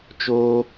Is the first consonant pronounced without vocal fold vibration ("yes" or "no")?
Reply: yes